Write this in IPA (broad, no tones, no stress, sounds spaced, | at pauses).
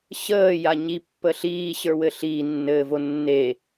ɕ əː j a ɲ i pː ə ɬ iː ɕ ə˞ w ɘ ɬ iː nː ɘː v o nː e